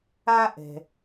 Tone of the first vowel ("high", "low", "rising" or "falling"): high